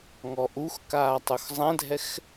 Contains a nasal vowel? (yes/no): yes